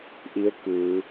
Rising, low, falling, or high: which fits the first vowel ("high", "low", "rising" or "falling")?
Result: rising